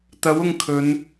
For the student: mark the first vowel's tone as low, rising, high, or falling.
rising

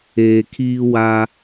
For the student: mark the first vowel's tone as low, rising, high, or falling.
low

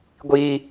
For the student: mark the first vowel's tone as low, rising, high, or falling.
high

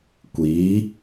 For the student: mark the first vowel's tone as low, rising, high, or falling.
rising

